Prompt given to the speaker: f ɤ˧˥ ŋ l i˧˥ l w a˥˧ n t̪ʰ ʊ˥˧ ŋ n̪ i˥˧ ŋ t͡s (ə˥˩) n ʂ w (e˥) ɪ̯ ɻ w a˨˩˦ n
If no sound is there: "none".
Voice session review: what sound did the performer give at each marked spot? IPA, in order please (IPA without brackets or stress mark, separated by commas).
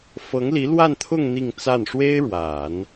a˥˩, e˥